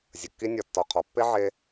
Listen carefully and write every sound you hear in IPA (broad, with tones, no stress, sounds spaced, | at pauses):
zʲ ə˨ kː i˦ nʲ ɒ˨ tː ɒ˨ qʰ ɒ˨ pː e˦ ʕ e˧